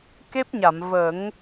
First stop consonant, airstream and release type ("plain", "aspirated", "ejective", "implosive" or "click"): plain